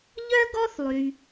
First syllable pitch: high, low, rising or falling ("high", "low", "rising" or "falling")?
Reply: high